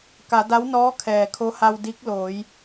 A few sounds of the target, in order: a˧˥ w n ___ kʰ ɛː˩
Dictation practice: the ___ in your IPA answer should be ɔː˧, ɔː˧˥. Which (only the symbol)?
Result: ɔː˧˥